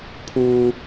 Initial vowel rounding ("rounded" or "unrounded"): rounded